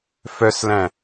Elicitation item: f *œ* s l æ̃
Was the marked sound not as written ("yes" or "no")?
no